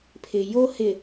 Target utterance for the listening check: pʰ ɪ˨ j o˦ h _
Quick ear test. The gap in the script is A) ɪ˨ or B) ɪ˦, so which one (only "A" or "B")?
A